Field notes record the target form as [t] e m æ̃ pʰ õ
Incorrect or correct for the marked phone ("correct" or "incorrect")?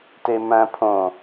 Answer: correct